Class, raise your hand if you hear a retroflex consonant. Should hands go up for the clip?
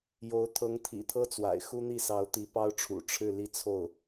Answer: yes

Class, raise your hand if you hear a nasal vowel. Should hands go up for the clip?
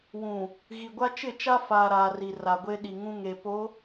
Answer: yes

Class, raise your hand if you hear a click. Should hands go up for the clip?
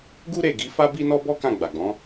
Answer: no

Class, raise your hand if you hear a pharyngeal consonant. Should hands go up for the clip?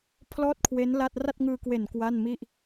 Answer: no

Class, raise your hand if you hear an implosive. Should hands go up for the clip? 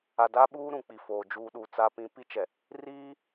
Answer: yes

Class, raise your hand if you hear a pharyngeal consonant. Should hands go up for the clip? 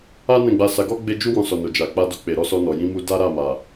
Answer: no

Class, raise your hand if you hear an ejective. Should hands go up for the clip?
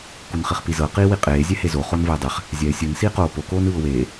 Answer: yes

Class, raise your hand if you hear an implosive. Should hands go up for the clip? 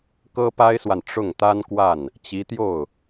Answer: no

